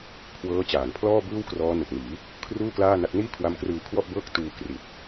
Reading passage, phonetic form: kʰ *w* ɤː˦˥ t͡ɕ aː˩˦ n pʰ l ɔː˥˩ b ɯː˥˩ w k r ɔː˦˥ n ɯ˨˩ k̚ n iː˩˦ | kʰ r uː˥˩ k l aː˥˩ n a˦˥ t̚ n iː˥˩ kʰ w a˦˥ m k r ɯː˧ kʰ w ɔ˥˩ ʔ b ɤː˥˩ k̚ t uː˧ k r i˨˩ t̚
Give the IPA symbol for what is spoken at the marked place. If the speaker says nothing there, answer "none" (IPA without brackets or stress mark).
w